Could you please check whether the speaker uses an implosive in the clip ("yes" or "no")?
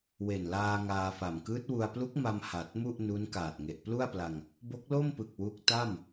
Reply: no